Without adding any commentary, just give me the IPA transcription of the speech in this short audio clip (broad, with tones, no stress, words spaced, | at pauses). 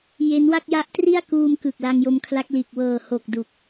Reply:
je˦˥nwa˥˩k̚ ja˦˥ʔtri˥˩a̯kuː˧mkɯ˨˩k̚ la˧ŋjo˧mkʰla˦˥k̚liː˨˩k̚ wɤː˨˩ho˨˩k̚du˨˩k̚